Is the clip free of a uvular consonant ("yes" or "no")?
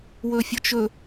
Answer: yes